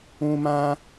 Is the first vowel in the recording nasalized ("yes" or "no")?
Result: yes